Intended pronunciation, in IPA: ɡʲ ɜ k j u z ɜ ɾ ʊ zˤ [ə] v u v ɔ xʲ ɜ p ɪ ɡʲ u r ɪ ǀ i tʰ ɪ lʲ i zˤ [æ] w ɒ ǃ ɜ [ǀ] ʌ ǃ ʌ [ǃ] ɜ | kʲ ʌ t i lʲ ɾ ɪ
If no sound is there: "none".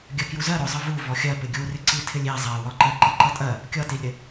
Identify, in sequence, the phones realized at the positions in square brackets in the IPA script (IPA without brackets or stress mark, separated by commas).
ə, æ, ǃ, tʼ